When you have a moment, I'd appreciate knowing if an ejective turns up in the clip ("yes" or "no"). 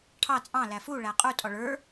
yes